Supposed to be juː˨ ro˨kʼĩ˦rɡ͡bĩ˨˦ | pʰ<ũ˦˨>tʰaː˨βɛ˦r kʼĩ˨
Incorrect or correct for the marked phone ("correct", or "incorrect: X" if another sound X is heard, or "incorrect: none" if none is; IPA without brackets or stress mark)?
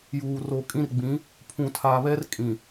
incorrect: ũ˨